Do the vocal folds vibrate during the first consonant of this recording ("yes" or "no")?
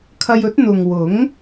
no